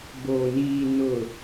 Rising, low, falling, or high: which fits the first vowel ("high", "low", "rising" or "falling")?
low